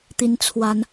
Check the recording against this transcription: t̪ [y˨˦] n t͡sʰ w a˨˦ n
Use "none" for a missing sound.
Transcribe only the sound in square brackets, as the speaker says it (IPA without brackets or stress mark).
i˨˦